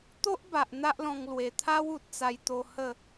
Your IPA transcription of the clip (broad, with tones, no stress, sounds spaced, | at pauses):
t̪ o˦ ʔ b a˨ ʔ n̪ a˦ ʔ l ɔ̃˧ ŋ l w e˨˩ t̪ʰ a˦ w u˨ t̚ t͡s a˧ j t̪ o˧ h ə˥˧